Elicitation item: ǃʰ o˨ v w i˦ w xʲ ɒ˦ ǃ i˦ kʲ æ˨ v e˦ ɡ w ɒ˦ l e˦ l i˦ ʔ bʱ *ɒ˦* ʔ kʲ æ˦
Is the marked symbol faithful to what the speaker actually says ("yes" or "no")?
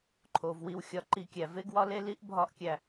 yes